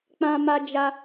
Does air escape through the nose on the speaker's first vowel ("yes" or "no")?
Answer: yes